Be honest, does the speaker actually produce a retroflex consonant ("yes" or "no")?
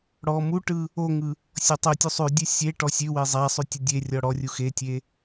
yes